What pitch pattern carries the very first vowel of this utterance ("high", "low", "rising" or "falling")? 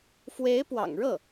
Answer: rising